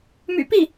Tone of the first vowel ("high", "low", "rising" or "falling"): low